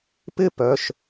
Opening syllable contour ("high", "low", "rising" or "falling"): falling